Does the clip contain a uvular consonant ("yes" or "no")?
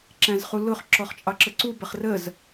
yes